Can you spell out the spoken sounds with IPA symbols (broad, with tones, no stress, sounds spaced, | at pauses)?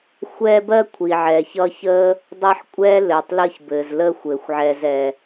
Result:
xʷ ɛː˦ b ɜ˥ kʷʰ i˩ ʕ ɛː˩ ç ʌ˦ ç əː˥ | dˤ ʌ˦ ħ kʷʼ ɛː˥ l ɘː˩ tˤ l əː˦ ç b ɘː˩ z l əː˦ xʷ ɘː˩ xʷ ʕ ɛː˨ z ɛː˩